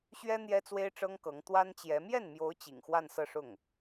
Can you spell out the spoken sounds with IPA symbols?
ɕ ɥ ɛ˥ n̪ j ɛ˥ t͡s w e˥ ɪ̯ ʈ͡ʂ ɤ˥ ŋ k ɤ˧˥ ŋ t̪ w a˥ n t͡ɕ j ɛ˧˥ m j ɛ˥˩ n m j o˧˥ ʊ̯ t͡ɕ ḭ˨˩ ŋ x w a˥˧ n s ɤ˥˧ ʂ ʊ˥˩ ŋ

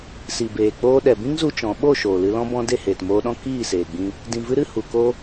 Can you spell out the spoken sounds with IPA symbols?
s i˨ b eː˨ k͡p oː˧ ɗ ɛ˨ b ĩ˦ ŋ z u˧ t͡ʃ ɔ̃˨˦ ɓ o˦˨ ʃ oː˨ l ɨ˧ l ɔ̃˦ b ɔ̃˧ d e˦˨ h eː˨ t m oː˧ ɗ ɔ̃˦ k iː˦˨ s eː˨ ɡ͡b ĩ˧ | d ĩ˨ v ɨ˧ ɾ ɨ˦˨ h u˨ k o˧

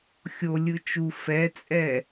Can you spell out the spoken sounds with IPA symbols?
xʲ o lʲ ɯ t͡ʃ u f ɛ t͡sʼ ɛ

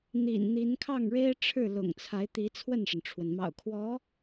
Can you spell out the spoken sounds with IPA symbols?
n̪ ḭ˨˩ n n̪ i˧˥ n kʰ ɑ˥˩ ŋ ɻ e˥ ɪ̯ ʈ͡ʂʰ ɻ̩˥˩ l ʊ̰˨˩ ŋ t͡sʰ a˧˥ ɪ̯ t̪ i˧˥ t͡sʰ w ə˥˩ n ʂ ə˩ n ʈ͡ʂʰ w ə˩ n m ɑ̰˨˩ ʊ̯ kʰ w ɔ˧˥

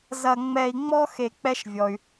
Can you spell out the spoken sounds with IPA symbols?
z ɐ˧ ŋ͡m ɛ˧ i̯ ŋ͡m ɔ˥ x e˧ k͡p ɛ˥ ʃ vʲ ɔ˩ y̯

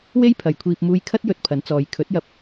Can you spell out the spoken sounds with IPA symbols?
w e˥ j pʰ ɐ˨ j kʷʰ iː˧ p̚ m uː˧ j kʰ ɐ˥ t̚ j ɵ˧ t̚ pʰ ɐ˨˥ n t͡s ɔː˨˧ j kʰ ɵ˨˥ t̚ j ɐ˧ p̚

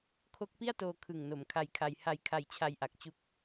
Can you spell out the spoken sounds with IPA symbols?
kʰ o˦˥ k̚ p i˥˩ a̯ t oː˧ kʰ ɯ˨˩ ŋ n o˩˦ m kʰ a˧ j kʰ a˧ j h a˧ j kʰ a˧ j t͡ɕʰ a˧ j ʔ a˨˩ k̚ t͡ɕ u˦˥ k̚

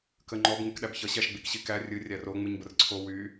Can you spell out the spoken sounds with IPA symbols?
k ə ŋ͡ǃ ɔ b ŋ ɨ k ɗ æ b ç ʌ ɕ æ ʃ ɡ͡b i k ɕ i k æ rʲ ɨ rʲ æ r o ŋ͡m ɨ ɲ b ə r ǀʰ o w y

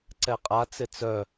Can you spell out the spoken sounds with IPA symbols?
ǀ ɛ qʼ a t͡s ɪ t͡s œ

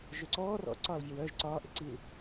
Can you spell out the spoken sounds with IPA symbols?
ʒ ø ǀ ɔː r ɔ̰ ǀ ɒː l vʲ ɒ w œː ʒ ǀ ɒː ʔ ɪ ǀ i l

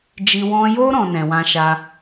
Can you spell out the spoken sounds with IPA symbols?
d͡ʒ i˧ w ɔ̃˧ j o˦ ɾ ɔ̃˦ n ɛ̃˧ w ã˦ ʃ a˦

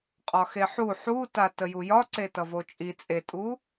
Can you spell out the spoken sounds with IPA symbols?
qʼ ɒ x e ħ u ħ u t a t ə j u j ɒ ǀ e t ʌ v o t͡ʃʼ i t͡sʼ e tʼ u

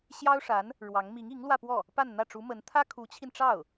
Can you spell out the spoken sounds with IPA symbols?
ɕ j ɑ˥ ʊ̯ ʂ a˧˥ n | ɻ w ɑ˧˥ ŋ m i˧˥ ŋ i˧˥ ŋ l w ä˥˧ p w ɔ˥˩ | p a˥˧ n n̪ ä˥˩ ʈ͡ʂ u˧˥ m ə˧˥ n t̪ʰ ä˥ kʰ u˧˥ t͡ɕʰ i˧ n ʈ͡ʂ ɑ˥˩ ʊ̯

